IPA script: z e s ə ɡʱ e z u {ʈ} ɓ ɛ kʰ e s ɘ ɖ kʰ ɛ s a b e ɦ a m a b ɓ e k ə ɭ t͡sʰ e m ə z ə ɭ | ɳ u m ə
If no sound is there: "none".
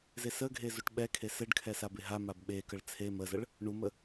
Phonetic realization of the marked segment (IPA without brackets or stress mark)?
ʈ